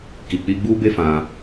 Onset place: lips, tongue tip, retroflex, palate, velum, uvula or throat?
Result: velum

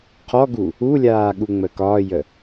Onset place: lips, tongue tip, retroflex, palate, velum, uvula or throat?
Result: uvula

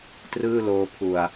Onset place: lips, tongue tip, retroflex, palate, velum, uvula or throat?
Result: tongue tip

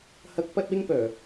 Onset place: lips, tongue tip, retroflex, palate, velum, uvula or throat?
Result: throat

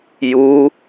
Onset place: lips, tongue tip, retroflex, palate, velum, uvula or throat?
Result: palate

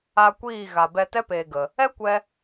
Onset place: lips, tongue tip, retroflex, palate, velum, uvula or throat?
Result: velum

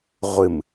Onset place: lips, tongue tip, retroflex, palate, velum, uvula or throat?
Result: uvula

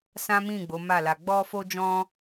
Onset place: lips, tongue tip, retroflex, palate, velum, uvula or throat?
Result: tongue tip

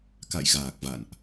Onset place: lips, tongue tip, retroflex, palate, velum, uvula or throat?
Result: velum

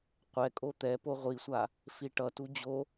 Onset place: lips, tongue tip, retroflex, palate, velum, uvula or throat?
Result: uvula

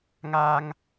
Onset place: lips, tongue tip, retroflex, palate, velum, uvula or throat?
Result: velum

